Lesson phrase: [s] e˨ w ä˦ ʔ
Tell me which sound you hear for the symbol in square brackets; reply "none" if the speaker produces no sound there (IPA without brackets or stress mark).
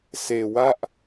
s